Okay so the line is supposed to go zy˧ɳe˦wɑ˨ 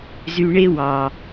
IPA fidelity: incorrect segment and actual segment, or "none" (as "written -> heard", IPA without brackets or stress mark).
none